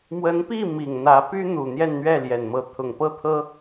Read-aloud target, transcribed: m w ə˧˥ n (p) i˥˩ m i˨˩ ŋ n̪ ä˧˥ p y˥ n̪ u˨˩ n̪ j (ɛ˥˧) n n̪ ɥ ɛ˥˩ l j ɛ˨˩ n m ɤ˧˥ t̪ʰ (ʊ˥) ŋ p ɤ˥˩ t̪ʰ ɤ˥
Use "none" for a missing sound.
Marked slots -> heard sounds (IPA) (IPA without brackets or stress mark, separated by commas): p, ɛ˥˧, ʊ˨˩